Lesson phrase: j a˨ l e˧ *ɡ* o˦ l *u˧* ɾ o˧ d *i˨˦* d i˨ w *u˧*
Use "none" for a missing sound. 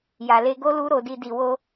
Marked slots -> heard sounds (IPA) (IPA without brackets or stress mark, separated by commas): ɡ, u˦, i˧, o˧